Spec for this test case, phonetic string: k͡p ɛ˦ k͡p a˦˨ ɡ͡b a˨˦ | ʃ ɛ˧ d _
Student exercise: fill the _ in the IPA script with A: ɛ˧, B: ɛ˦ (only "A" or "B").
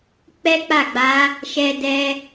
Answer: A